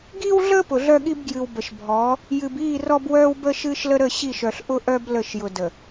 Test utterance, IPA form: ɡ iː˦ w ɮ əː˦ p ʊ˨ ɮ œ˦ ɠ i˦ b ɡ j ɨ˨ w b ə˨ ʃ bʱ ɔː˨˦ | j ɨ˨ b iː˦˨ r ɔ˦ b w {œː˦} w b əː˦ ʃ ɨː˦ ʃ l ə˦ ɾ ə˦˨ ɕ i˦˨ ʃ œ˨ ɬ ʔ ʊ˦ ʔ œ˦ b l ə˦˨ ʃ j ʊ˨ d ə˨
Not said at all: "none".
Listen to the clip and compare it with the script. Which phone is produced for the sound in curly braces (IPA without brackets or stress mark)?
œː˦